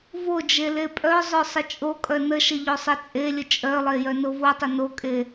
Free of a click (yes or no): yes